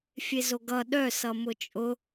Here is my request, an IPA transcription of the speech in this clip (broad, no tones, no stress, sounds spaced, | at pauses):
fʲ e z o ɡ ʌ ɗ œ s ʌ m ʊ t͡ʃʼ ʊ